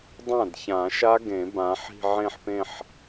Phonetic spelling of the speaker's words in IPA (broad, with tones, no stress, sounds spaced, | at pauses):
dˤ ã˥˩ d ç ã˨˩˦ ʃ a˦˥ ɡ ẽ˨˩˦ b ã˨˦ ħ i̤˥˧ ʕ ẽ˥˧ ħ p ẽ˥˧ ħ